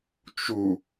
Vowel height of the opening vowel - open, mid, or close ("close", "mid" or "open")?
close